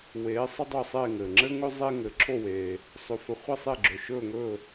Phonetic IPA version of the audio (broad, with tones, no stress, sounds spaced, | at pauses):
w eː˩˥ sˤ ə˧ dˤ ɵ˥˩ sˤ eː˥˩ ŋ ɘː˩ ŋ͡ǁ ɘː˥ ŋ ɵ˥ zˤ e˥ ŋ ɘː˩ ǁʰ o˥˩ w eː˩ | sˤ ɵ˩˥ f ɘ˩˥ χʷ ɘ˥˩ sˤ e˥˩ ɡ͡ǁ ɵ˩ ʃ ɵː˥˩ ŋ ɵː˥˩